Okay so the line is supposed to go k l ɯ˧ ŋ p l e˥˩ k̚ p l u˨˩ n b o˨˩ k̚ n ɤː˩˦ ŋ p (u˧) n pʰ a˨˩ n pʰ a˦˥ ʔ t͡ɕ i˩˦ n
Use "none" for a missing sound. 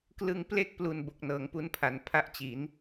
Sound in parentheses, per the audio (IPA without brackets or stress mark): u˧